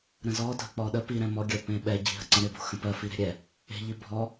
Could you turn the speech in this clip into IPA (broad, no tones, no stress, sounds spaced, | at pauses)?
ɾ ə̃ z ɔ dʱ ə k͡p ɔ ɗ ə p i ɾ ɛ̃ m ɔ ɡʲ ɜ p ẽ ɓ ɛ ɟ i̤ ɦ ə ǀ ə̃ ɾ ɪ b o̤ x ə̃ p ɜ f i ɾ e̤ ɾʲ ɛ | e̤ ʎ i bʱ ɔ